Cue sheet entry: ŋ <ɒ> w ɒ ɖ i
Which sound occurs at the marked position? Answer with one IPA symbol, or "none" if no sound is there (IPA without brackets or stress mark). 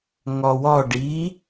ɒ